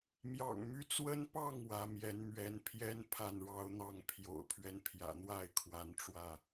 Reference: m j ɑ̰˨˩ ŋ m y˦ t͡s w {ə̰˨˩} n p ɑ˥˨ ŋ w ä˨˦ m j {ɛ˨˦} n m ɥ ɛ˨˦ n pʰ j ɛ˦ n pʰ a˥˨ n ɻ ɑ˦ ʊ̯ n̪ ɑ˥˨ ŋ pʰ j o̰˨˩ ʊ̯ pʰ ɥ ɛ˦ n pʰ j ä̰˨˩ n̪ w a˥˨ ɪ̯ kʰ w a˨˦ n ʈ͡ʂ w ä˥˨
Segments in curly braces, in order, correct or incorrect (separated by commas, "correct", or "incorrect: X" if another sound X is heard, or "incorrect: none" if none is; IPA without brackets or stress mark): incorrect: ə˦, correct